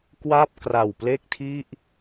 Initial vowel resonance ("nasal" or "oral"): oral